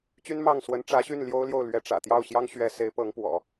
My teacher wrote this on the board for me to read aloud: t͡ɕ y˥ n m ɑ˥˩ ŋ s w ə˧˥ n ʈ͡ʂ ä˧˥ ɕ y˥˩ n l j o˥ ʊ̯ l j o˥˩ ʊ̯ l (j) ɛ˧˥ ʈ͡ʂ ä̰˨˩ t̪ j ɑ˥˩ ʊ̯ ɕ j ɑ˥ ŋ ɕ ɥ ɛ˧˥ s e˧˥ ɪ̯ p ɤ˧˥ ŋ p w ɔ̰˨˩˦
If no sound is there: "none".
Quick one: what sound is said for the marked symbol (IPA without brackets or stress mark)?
ɥ